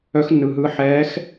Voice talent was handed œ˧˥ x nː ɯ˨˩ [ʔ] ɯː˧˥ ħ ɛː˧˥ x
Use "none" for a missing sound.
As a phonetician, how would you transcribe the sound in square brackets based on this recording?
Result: ɦ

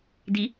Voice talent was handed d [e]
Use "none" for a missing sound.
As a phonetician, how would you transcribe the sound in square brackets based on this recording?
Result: i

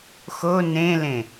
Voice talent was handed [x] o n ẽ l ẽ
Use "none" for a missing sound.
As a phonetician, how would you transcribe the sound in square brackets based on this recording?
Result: x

